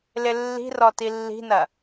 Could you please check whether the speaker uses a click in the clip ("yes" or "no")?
no